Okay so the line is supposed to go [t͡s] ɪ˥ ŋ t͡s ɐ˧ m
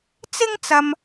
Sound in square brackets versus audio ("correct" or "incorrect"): correct